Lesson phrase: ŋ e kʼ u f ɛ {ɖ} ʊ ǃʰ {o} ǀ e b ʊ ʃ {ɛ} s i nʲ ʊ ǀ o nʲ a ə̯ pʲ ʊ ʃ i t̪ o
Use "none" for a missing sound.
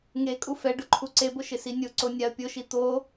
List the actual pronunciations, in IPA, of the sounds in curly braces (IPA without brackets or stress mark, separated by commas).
ɖ, u, ɪ